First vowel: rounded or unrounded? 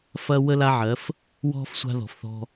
unrounded